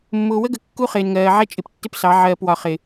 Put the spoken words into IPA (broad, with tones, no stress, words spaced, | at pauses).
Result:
mːʊː˨wə˦ɡə˨ kːu˦χɪː˨nŋɜː˨ʕɛ˦ t͡ʃʼɪ˨ptːɪ˦psɑ˨˦ ʕɜː˨pwɒ˨χɪ˨